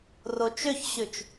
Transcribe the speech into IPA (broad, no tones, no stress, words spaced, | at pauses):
rot͡ʃøçɕʉt͡ʃ